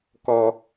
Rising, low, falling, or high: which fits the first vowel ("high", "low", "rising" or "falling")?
high